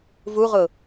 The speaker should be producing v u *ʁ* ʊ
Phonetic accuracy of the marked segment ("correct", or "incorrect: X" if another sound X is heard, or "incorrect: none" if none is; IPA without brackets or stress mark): correct